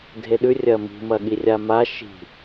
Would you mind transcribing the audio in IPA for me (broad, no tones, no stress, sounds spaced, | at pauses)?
dʱ e ɗ ʉ rʲ ɐ m i̤ m ɐ ɠ i rʲ a m a ʃ i̤